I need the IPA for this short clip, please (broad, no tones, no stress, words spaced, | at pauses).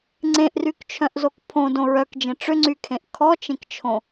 ŋ͡ǀẽʔrykt͡ʃʰœ̃ʔzok pʰõdõ ɹœkd͡ʒẽ ʈ͡ʂʏŋ͡ǀykʰẽʔ kʰɔt͡ʃẽkt͡ʃʰõ